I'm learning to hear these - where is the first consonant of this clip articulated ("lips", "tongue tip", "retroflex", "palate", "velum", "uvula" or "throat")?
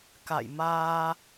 velum